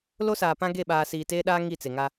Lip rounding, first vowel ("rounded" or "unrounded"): rounded